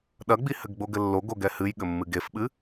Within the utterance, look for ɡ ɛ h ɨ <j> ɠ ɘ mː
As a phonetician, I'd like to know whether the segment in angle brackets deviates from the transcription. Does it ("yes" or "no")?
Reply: no